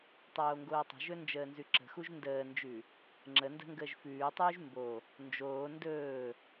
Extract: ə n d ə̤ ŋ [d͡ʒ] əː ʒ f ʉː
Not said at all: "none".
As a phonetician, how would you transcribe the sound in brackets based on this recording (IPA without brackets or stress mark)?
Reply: ɡ